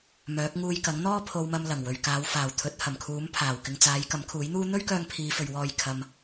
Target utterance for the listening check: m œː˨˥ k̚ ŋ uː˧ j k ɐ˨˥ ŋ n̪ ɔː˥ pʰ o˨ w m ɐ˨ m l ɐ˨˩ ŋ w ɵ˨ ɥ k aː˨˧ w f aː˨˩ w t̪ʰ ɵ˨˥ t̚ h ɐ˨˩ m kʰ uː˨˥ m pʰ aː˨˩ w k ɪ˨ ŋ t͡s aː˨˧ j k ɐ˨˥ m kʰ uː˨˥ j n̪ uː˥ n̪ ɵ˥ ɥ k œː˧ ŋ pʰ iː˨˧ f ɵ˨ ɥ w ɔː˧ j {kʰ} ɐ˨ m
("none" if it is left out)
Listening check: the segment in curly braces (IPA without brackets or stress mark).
kʰ